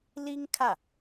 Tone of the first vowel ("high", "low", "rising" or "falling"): high